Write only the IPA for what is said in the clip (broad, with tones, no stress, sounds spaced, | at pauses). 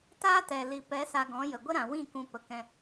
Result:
t aː˦ t ɛ˨ l i˨ p ɛ˨˦ s a˧ ɡ ɔ̃˨˦ j ə˨ ɡʷ ə˦ ɾ ã˨ w ĩ˦˨ k ũ˧ p ə˨ k ɛ̃˧